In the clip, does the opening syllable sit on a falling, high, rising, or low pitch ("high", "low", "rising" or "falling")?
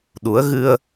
rising